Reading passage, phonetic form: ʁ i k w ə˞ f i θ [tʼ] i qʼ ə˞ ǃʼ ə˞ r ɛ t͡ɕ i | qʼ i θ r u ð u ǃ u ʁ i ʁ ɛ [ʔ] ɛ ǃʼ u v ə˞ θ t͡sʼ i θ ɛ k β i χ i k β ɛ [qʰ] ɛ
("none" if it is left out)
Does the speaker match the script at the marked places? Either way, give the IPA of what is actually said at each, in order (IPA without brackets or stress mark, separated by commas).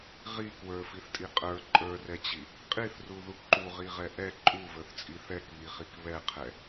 tʼ, ʔ, qʰ